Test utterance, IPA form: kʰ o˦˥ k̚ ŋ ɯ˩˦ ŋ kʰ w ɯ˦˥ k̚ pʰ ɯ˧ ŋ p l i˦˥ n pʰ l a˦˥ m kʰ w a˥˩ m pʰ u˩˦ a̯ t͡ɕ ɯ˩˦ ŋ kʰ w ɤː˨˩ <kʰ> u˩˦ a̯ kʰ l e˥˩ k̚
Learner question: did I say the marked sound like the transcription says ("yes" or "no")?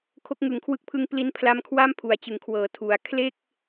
no